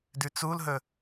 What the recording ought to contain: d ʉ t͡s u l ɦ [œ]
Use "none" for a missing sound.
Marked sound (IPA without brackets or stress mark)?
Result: ɵ